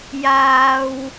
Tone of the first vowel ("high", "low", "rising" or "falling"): low